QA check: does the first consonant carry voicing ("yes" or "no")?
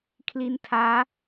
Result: no